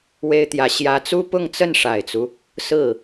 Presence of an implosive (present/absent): absent